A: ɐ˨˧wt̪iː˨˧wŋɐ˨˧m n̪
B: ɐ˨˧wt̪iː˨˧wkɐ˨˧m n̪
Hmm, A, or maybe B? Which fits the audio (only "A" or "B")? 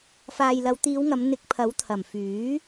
A